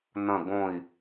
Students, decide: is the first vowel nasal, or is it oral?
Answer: nasal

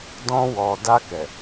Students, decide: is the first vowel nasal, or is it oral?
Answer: nasal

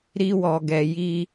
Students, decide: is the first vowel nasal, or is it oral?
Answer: oral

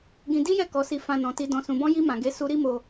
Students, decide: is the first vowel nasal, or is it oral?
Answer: nasal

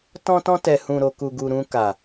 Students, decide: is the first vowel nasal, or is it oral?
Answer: nasal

